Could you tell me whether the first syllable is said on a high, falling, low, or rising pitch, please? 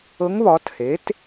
rising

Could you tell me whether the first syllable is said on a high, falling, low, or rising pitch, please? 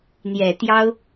low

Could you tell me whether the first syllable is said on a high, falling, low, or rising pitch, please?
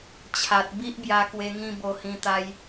low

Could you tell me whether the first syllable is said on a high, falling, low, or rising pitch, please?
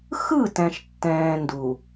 falling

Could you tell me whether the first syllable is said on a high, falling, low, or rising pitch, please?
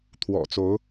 low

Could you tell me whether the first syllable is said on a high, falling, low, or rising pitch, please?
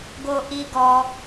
high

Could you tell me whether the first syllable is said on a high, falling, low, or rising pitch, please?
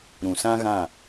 low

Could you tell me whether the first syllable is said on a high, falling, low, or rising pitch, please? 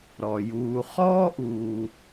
low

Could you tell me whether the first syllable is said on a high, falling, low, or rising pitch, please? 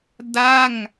falling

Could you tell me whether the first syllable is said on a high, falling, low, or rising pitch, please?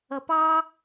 low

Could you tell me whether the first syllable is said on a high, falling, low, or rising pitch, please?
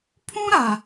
high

